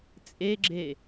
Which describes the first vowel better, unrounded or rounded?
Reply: unrounded